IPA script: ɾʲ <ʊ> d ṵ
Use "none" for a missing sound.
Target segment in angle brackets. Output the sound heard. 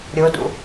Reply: ʊ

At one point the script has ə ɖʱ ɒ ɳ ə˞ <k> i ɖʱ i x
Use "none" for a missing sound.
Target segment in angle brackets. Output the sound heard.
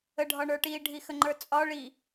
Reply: ʈ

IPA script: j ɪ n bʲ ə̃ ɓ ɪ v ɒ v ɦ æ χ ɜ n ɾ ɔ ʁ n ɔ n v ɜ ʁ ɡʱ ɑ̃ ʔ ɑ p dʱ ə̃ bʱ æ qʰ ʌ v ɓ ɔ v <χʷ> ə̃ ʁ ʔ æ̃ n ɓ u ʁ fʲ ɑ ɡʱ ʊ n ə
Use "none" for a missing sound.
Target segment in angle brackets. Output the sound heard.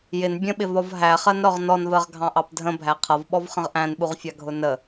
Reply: χ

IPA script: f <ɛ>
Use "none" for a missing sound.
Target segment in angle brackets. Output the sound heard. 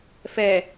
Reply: ɛ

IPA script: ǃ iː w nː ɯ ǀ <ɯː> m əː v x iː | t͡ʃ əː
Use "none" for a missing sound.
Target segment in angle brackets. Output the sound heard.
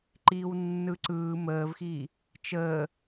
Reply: ɯː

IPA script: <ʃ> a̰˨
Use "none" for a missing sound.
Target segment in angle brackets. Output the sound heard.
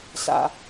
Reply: s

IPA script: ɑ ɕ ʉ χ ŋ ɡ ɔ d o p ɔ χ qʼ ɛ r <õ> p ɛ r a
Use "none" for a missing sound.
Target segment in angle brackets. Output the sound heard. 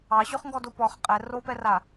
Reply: o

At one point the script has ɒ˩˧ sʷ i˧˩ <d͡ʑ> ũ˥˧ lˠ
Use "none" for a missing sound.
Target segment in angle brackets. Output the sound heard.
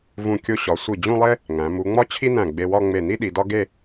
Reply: d͡ʑ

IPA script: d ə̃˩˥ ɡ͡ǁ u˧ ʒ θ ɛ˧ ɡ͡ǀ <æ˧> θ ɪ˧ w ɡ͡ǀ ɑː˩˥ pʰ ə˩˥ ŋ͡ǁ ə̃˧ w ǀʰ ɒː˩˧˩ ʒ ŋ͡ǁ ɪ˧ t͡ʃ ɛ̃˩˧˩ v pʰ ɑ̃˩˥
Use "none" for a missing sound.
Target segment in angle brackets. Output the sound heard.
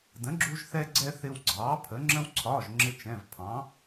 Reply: ɛ˧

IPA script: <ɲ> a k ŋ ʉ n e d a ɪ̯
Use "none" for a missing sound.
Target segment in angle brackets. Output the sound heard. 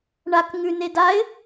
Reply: ɳ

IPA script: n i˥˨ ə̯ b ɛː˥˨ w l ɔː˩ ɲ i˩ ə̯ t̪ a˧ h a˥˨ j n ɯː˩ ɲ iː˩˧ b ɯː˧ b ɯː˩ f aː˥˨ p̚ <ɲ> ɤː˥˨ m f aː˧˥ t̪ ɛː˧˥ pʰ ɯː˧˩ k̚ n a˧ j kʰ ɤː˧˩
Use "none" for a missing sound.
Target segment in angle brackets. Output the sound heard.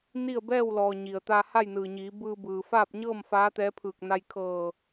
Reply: ɲ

